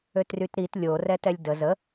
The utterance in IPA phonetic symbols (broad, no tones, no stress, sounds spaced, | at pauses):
ø t r y t ɾ i t lʲ o r ɛ t ɛ lʲ d ə z ə